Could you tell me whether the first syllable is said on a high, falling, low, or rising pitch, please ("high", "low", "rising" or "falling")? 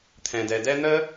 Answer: low